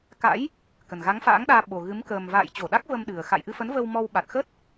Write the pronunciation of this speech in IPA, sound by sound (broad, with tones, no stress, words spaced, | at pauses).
ka̰˧˥j | kə˨˩nɣa˨˦ŋfa̰ː˧˥ŋɗaː˧ ɓo˨˩ɣɨ˨˦m kəː˨˩mva̰ː˧˨j t͡ɕo˧˩ɗa˦˥k̚və˧m ɗɨ˨˩ə̯ xa̰˧˨jʔɨ˧fə˨˦nvə˧w mɔ˧wɓa˨˩t̚xə˦˥t̚